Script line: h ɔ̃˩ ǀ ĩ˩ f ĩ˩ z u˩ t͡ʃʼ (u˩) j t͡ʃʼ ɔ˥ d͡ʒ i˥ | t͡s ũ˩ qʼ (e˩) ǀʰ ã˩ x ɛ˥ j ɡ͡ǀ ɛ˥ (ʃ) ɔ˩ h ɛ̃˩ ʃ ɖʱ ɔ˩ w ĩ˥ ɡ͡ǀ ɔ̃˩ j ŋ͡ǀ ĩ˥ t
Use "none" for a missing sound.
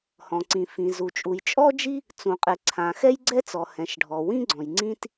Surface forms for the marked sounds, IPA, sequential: u˩, ɛ˩, t͡s

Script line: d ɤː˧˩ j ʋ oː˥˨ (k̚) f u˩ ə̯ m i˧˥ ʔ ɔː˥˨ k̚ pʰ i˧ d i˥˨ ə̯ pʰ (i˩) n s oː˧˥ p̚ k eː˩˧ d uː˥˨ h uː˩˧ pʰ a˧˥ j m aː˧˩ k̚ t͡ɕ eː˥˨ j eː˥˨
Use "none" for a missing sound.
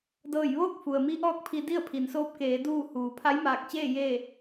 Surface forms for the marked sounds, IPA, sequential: k̚, i˩

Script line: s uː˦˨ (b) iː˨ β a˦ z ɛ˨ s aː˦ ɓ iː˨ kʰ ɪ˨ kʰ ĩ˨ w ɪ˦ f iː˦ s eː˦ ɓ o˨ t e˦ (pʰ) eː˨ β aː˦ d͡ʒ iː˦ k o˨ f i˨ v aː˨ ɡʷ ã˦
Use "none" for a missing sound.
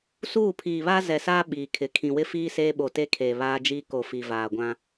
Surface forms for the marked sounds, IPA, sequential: pʰ, kʰ

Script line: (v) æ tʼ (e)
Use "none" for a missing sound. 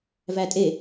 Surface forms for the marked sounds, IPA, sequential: v, e

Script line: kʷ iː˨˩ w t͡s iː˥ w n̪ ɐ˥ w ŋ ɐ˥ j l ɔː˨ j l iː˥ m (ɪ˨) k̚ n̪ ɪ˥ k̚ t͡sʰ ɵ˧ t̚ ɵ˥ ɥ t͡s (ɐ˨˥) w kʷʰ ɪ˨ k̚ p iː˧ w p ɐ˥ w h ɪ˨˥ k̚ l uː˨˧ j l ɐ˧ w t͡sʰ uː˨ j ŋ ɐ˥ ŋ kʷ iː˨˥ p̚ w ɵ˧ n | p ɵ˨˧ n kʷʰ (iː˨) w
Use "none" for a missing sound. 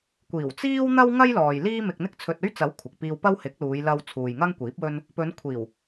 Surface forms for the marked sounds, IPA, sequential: ɪ˧, ɐ˨˥, iː˨˩

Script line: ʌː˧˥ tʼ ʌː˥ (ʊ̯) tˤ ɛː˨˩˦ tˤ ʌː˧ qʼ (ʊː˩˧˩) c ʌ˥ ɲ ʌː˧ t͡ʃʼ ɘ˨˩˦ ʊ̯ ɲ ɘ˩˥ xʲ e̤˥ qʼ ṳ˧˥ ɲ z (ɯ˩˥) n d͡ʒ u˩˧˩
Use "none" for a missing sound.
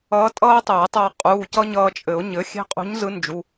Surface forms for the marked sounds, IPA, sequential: ʊ̯, uː˩˧˩, ɯ˧˥

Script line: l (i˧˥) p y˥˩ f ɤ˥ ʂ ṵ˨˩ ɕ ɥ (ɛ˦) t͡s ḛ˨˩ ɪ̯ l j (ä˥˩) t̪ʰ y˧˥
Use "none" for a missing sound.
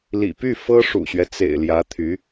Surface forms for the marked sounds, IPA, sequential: ḭ˨˩, ɛ˦, ä˧˥

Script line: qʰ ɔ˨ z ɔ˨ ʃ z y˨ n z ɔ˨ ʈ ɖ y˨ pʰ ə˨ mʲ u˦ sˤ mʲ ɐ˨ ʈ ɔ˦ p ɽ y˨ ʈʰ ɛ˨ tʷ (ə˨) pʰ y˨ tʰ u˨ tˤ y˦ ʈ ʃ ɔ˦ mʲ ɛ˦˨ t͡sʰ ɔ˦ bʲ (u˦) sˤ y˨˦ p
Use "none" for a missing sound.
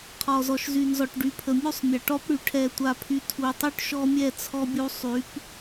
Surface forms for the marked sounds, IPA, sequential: a˨, u˦

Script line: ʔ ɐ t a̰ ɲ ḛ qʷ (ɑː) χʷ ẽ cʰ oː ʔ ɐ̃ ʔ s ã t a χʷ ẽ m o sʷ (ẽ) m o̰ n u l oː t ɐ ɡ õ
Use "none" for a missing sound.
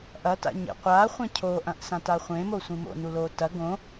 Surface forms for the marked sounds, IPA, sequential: aː, ĩ

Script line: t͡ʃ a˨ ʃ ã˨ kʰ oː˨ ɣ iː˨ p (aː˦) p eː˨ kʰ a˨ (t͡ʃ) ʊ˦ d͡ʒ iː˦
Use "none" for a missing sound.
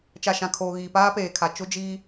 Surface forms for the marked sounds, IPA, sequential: aː˦, t͡ʃ

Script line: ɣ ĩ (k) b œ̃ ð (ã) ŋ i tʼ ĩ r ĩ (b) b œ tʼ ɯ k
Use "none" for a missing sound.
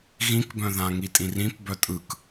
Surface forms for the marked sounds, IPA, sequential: k, ã, p

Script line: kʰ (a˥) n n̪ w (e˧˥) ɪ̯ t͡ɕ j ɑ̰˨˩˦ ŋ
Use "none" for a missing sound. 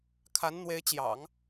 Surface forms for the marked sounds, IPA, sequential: a˧˥, e˧˥

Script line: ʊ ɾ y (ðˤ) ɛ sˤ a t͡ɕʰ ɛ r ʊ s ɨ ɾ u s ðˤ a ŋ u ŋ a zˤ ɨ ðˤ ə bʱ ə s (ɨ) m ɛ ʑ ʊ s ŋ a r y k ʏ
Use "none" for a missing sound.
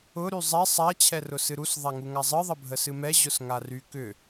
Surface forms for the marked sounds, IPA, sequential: zˤ, ɨ

